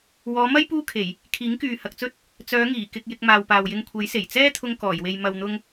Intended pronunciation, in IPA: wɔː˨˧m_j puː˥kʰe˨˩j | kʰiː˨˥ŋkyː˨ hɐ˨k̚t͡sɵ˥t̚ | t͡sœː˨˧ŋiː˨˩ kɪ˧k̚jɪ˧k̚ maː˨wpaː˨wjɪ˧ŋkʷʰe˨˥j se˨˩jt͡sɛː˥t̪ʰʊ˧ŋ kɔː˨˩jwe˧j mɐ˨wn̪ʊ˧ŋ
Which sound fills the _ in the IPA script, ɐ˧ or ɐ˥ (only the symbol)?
ɐ˥